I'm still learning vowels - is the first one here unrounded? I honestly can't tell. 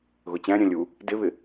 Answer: no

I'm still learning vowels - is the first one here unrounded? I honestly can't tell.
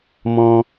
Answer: no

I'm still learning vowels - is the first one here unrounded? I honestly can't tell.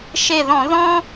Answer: yes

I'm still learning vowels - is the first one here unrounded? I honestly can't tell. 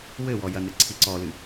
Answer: yes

